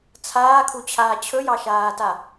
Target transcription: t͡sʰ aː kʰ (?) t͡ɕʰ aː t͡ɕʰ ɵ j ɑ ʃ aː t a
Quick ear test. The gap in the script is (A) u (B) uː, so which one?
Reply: A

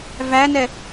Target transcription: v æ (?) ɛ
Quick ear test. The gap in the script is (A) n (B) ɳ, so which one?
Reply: A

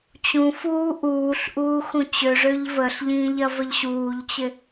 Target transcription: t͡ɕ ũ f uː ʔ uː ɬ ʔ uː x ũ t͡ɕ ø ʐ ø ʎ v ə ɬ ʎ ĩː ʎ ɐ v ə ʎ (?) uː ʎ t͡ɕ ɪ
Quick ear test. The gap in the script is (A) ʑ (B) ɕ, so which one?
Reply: B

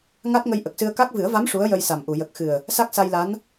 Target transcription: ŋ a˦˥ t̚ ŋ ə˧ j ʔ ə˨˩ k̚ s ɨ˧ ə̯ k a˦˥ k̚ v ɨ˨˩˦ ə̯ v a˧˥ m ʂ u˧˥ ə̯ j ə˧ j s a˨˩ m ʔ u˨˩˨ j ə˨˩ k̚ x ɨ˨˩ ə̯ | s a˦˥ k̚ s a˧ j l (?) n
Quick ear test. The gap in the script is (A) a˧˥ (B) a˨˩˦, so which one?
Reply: A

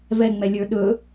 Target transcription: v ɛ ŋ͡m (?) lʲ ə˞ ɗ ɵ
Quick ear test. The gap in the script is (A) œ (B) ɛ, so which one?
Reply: B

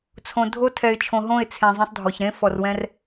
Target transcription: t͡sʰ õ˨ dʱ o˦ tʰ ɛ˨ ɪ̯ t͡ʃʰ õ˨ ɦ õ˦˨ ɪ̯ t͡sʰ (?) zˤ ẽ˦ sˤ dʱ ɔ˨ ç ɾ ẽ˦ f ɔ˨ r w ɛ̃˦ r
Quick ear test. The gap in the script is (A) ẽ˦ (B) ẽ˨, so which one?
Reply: B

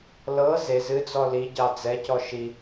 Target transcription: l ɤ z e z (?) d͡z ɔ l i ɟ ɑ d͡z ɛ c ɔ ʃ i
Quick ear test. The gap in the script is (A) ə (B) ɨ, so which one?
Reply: B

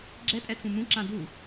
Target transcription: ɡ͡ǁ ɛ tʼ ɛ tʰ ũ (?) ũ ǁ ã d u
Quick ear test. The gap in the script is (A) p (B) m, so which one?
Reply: B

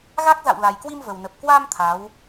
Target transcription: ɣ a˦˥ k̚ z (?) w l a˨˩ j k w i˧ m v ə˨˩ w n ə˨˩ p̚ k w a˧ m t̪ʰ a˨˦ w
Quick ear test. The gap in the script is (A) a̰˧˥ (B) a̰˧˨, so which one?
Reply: B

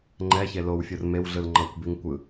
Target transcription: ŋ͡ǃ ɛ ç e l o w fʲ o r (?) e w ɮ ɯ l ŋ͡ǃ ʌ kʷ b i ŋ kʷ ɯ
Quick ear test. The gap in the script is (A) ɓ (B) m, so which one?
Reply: B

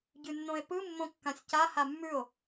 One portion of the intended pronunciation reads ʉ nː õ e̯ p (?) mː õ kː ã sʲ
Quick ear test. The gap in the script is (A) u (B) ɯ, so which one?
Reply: B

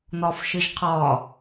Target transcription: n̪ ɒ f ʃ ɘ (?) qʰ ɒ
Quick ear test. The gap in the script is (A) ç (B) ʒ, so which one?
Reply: B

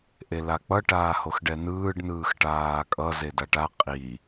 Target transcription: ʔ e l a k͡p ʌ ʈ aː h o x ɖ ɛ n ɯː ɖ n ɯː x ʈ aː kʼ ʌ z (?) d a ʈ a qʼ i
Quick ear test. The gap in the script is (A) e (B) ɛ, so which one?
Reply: A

